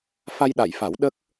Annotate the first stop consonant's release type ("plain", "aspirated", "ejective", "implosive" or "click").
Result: implosive